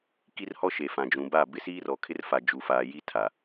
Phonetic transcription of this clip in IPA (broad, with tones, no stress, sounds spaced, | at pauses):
k i˦ r h ɔ˦ ʃ e˨ f ã˨ d͡ʒ ũ˨ b a˦˨ b ɪ˦ s iː˦ r ɔ˨ kʰ ɪ˦ r f a˨ d͡ʒ u˨ f aː˨ j i˦ tʰ a˨